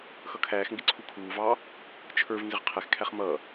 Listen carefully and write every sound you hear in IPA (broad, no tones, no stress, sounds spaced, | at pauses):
x ʌ kʰ æː x ŋ ɡ ɪ ǀʰ u kʰ uː v ɑː | t͡ʃʰ ə˞ v n z ɪ ʁ qʰ ɛ x kʰ æ χ m ʌː